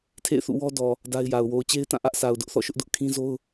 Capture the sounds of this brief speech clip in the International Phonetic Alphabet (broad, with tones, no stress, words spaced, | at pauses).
tʰḛ˦˨ɪ̯θṵ˦˨wɔ˦ dɔ˨ | da˦ɪ̯ja˨ʊ̯ wo˨ʊ̯t͡ɕe˦ɪ̯tã˦˨ ʔä˦ʔsʰa˨ʊ̯ dʊ˦ʔθɔ̰˦˨ʃʊ˦ʔ dʊ˦ʔ kʰĩ˦zo˦ʊ̯